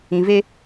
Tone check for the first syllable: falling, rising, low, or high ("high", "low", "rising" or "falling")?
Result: low